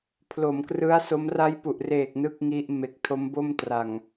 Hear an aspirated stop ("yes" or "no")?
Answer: yes